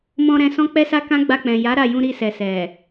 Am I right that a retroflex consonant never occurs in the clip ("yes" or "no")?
yes